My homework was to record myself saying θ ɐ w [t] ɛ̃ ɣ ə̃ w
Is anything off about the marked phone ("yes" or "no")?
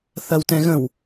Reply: no